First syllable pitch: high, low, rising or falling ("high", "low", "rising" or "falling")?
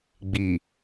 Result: low